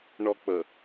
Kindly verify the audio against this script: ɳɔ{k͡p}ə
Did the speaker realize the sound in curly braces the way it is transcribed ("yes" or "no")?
yes